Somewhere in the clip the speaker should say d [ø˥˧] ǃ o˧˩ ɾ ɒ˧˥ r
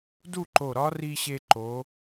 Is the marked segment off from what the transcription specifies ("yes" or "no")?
yes